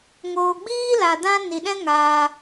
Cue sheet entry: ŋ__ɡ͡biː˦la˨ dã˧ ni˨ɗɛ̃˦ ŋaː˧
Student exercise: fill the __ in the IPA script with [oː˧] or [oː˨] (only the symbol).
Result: oː˨